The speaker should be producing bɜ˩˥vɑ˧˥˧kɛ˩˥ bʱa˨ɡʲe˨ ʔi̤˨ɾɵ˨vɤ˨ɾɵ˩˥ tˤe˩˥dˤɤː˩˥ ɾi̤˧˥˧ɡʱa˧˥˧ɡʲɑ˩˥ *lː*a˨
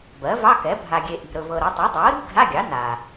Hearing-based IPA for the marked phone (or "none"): n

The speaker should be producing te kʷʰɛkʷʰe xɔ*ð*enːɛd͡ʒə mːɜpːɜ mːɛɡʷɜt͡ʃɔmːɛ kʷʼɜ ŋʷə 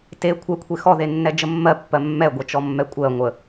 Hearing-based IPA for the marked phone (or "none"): ð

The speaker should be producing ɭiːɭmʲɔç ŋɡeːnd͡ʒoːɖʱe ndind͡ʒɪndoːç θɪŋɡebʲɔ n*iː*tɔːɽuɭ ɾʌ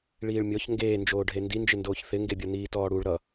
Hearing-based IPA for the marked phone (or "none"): iː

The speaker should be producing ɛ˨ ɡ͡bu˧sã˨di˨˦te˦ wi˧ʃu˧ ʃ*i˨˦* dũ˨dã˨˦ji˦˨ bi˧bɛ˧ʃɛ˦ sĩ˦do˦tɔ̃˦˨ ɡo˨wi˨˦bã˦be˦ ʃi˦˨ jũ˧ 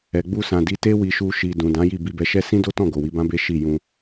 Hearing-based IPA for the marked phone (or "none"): i˨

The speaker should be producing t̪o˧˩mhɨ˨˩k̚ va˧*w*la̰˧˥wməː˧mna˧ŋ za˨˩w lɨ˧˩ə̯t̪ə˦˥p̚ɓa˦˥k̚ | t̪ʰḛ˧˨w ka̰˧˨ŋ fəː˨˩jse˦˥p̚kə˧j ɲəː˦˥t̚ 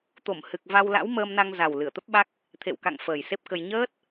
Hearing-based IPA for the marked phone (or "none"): w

